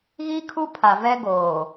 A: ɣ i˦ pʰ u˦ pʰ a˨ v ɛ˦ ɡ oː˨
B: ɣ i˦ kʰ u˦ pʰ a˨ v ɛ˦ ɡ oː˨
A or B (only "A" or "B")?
B